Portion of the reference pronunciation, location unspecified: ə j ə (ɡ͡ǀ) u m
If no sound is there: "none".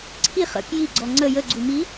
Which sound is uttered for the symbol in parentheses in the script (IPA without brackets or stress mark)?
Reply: ɡ͡ǀ